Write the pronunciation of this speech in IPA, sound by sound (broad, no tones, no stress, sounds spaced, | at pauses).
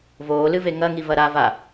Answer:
v oː l ɨ v e ŋ ɐ ŋ i v ɐ ɾ a v a